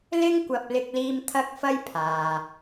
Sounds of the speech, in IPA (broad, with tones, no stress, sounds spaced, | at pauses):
l ɪ˥ ŋ kʷ ɐ˧ p̚ l ɪ˧ k̚ l iː˧ m t̪ʰ ɐ˥ k̚ f ɐ˥ j pʰ aː˨